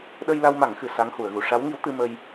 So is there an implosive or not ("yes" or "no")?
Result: yes